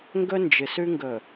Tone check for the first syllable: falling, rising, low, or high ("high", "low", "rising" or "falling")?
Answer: high